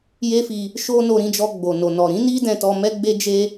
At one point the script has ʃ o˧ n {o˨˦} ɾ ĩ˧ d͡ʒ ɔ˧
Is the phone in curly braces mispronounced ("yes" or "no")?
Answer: yes